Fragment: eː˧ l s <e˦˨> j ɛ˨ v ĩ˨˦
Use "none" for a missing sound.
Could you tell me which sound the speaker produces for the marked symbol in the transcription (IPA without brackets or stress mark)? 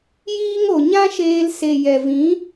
e˨